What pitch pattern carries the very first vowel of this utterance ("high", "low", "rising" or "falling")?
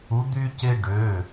rising